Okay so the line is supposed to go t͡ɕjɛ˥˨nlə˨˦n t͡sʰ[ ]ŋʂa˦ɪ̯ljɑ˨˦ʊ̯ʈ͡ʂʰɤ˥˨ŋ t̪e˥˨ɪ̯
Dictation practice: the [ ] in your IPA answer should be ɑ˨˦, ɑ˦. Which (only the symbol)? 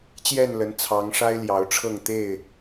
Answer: ɑ˨˦